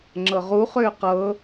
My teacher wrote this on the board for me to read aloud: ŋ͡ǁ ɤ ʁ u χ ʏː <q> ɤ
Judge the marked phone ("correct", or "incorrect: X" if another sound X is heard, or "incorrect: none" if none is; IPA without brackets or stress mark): correct